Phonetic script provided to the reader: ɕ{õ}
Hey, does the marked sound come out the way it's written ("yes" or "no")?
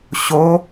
no